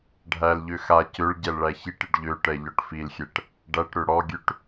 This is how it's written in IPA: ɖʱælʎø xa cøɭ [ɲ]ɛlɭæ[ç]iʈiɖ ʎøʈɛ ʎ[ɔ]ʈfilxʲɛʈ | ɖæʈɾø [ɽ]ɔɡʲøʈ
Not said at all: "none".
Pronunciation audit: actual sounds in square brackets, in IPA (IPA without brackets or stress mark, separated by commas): ɟ, ç, ɔ, ɽ